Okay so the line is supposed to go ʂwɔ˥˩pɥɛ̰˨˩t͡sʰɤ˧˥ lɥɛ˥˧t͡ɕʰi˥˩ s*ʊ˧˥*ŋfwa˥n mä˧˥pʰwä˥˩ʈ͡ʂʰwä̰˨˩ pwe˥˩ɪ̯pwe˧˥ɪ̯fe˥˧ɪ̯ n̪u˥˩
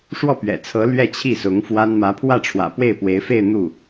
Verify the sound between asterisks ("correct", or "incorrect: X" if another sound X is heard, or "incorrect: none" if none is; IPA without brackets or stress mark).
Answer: correct